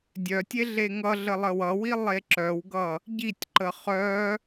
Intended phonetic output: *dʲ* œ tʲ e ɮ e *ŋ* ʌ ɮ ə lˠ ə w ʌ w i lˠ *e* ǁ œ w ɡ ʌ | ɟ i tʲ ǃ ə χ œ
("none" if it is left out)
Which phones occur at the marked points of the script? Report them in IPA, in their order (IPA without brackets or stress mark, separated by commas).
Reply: dʲ, ŋ, e